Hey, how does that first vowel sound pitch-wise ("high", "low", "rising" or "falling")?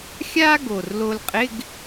high